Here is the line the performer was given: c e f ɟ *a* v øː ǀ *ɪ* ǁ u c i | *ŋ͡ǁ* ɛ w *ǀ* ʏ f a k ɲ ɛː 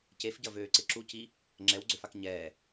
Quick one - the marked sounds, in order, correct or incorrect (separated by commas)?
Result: incorrect, correct, correct, incorrect